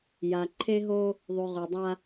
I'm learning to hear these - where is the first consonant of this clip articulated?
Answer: palate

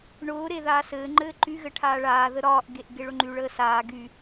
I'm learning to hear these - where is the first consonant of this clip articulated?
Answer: retroflex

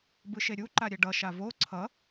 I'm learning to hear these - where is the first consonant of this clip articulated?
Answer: lips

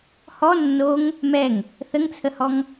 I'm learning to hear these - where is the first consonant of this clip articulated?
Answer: throat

